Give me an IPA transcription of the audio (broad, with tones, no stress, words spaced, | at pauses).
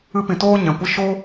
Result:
ɨ˧pĩ˨ toː˦ɲɛ̃˨kʷə˦ ʃo˦